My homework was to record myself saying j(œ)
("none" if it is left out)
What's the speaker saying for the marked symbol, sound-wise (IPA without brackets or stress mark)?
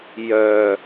œ